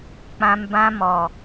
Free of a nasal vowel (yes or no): no